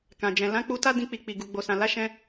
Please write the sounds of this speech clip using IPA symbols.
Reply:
k ã˨ d͡ʒ ɛ̃˨ l ã˨˦ k͡p u˧ t a˦ d ĩ˧ k͡p i˨ k͡p i˨ ɡ u˨ ɡ͡b o˨ s ã˨ l a˨˦ ʃ ɛ̃˧

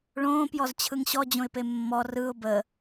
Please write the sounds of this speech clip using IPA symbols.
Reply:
ɭ õː p j ɔ z t͡ɕʰ ɯ ŋ ɕ ɔ d͡ʑ õ ɪ̯ p e mː ɔ r ɯ ʊ̯ b ə

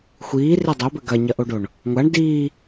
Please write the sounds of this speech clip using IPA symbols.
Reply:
xʷ iː r e dˤ o b ɘ ɡ ɐ ɲ ɐ ʔ o ɖ o ɳ | ŋʷ a ɳ d iː

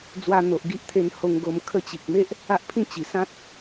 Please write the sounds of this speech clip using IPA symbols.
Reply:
d͡z w a˧ n̪ o˨ ʔ ɡ i˦ ʔ t̪ʰ e˧ n h o˧ ŋ ɡ o˧ m kʰ ə˧ t͡ɕ i˨ k̚ m e˦ ʔ | a˦ ʔ pʰ ĩ˥˧ t͡ɕ i˨˩ s ã˦ t̚

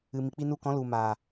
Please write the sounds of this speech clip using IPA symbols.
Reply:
ɨ˨ m i˨ k͡p i˧ n u˧ k ɔ̃˨˦ l u˨ m aː˨

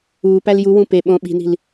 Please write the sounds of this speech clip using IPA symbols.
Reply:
uː p æ l j u w ũ p e ɓ õ ɓ i̤ n i̤ l

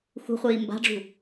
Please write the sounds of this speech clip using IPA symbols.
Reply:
x ṳ χʷ iː m b a̤ ɖ͡ʐ ṳ

